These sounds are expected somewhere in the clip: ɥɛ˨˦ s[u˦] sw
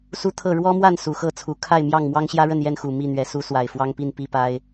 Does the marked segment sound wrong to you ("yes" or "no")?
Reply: yes